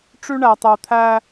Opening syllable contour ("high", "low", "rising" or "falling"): high